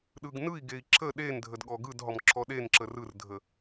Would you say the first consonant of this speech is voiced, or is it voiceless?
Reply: voiced